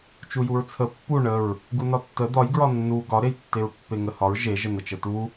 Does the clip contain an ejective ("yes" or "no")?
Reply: no